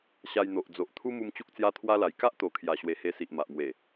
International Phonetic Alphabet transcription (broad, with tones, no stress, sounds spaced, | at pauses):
ɕ a˧ j n̪ o˨ ʔ d͡z o˨ ʔ t̪ʰ u˦ m u˧ m t͡ɕ u˦ k̚ t͡s j a˦ t̪ʰ w a˦ l a˨˩ j k a˦ ʔ t̪ o˨˩ kʰ j a˨˩ ɕ w e˨˩ h e˧ s i˨ ʔ m a˨ ʔ m w e˨˩